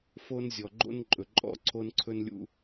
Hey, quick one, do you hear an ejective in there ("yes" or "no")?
yes